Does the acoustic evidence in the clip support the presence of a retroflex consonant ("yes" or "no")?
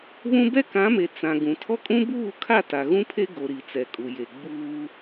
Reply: no